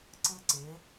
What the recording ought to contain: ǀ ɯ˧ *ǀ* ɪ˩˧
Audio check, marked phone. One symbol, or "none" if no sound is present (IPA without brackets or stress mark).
ǀ